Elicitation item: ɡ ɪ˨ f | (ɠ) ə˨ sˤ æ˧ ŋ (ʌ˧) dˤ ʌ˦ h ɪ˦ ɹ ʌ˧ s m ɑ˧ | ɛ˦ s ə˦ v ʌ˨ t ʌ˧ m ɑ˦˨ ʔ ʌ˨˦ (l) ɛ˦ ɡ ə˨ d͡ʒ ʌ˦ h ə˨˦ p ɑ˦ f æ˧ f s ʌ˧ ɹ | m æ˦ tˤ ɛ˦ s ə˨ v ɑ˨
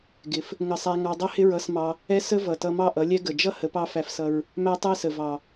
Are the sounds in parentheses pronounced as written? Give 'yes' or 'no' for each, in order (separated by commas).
no, no, no